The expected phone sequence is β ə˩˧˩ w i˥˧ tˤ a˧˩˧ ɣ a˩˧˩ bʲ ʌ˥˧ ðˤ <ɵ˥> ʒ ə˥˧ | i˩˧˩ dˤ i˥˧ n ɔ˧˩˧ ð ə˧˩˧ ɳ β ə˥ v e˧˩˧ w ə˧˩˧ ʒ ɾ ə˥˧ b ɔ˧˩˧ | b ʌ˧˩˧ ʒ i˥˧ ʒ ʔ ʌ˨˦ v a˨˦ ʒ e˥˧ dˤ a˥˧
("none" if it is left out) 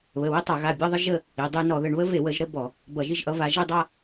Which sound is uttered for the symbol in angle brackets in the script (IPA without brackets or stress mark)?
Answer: ə˥